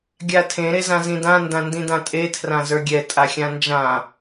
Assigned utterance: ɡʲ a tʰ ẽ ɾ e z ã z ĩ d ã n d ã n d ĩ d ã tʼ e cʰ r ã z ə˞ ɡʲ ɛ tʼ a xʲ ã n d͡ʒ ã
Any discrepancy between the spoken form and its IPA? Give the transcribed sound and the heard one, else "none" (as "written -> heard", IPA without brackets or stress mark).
cʰ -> tʰ